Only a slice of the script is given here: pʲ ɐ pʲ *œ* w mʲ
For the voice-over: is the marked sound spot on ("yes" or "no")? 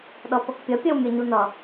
yes